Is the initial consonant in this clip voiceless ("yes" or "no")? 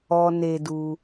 no